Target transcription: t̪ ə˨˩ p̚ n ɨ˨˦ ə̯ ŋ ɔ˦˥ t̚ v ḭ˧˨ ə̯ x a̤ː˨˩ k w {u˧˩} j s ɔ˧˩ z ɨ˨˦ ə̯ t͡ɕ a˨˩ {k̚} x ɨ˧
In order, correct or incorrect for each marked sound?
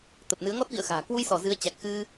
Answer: incorrect: u˧, correct

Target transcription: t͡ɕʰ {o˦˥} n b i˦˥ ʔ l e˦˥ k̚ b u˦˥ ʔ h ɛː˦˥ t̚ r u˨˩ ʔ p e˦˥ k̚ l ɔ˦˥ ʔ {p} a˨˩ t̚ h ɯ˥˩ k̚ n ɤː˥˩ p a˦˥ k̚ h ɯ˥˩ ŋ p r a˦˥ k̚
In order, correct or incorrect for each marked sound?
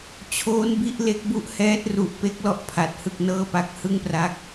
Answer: incorrect: oː˦˥, incorrect: pʰ

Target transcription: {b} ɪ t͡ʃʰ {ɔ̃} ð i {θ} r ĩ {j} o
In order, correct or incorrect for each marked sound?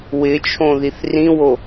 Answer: incorrect: w, incorrect: õ, correct, incorrect: w

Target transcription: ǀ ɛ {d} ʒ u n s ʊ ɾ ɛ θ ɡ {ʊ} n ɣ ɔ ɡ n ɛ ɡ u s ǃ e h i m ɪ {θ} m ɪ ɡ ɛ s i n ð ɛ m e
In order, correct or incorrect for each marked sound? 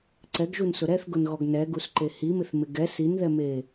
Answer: incorrect: ɡ, correct, correct

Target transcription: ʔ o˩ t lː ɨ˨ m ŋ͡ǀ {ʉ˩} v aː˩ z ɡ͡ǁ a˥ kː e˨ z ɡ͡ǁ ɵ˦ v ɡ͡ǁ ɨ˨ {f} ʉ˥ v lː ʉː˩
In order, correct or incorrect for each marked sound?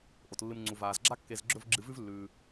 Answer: incorrect: u˩, incorrect: v

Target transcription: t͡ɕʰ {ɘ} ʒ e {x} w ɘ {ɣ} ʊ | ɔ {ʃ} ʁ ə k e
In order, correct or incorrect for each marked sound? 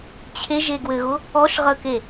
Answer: incorrect: e, incorrect: ɡ, correct, correct

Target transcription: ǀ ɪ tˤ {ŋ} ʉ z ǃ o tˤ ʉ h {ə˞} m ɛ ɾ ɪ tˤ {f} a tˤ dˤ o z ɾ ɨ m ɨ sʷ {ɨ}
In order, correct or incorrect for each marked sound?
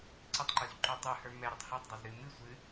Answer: incorrect: ǃ, correct, incorrect: h, correct

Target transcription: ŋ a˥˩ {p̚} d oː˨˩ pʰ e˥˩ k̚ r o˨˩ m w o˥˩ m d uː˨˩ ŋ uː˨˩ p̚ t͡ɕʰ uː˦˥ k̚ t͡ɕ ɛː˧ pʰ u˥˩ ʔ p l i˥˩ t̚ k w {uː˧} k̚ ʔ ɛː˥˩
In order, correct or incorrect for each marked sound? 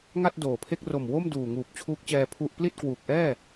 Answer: incorrect: t̚, incorrect: uː˨˩

